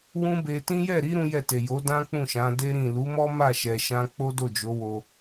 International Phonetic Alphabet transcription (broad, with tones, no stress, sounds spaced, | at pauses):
w ũ˦ b e˧ t ĩ˦ j ɛ˦˨ ɾ i˨˦ ɾ ũ˦ j ɛ˦˨ t e˨ j o˨˦ d ã˦ k͡p ũ˦˨ ʃ ã˨˦ d e˦ ɾ ĩ˦˨ l u˨˦ m ɔ˦ m a˦˨ ʃ ɛ˧ ʃ ã˦ k͡p o˦ d o˦˨ d͡ʒ o˨˦ w o˧